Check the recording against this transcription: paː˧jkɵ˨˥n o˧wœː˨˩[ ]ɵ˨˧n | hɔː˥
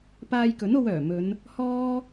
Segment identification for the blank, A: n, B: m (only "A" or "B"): B